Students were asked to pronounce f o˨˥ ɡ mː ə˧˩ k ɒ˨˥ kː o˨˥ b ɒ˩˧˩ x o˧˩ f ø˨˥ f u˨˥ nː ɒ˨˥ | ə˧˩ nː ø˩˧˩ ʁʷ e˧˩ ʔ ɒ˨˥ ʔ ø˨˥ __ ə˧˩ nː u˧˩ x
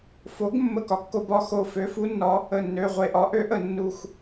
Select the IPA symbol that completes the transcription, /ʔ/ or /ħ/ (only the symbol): ʔ